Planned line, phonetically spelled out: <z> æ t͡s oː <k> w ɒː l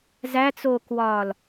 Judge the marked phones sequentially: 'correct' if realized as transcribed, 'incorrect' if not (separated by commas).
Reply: correct, correct